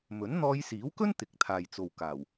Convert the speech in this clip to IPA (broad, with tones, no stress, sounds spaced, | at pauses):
m ɵ˨˥ n n̪ ɔː˧ j s iː˨˥ w k ɵ˥ n t̪ ɪ˨˥ k̚ t̪ʰ aː˨ j t͡s o˨ w k aː˨˩ w